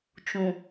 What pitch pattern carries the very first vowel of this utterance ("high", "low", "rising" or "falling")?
low